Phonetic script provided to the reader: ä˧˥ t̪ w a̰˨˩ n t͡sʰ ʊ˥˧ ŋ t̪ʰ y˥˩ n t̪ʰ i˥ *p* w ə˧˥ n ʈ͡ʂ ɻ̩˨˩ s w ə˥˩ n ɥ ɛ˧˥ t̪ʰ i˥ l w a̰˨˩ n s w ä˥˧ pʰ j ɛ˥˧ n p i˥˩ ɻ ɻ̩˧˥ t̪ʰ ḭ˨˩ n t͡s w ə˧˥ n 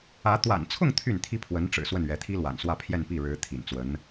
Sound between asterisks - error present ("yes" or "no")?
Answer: yes